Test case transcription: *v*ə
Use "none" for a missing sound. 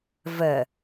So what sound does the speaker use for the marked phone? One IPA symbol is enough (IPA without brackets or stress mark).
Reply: v